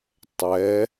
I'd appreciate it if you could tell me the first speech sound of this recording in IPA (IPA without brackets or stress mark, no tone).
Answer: tˤ